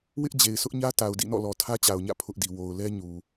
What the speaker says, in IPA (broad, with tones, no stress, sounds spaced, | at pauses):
w ɪ˦ ʔ d͡ʑ e˨ ɪ̯ s ʊ˦ ʔ ɲ ä˦ t a˨ ʊ̯ d ḭ˦˨ n ɔ̰˦˨ l ɔ˨ tʰ ä˦ t͡ɕ a˨ ʊ̯ ɲ ä̰˦˨ pʰ ʊ˦ ʔ d i˨ w o˨ ʊ̯ l ɛ˦ ɲ u˨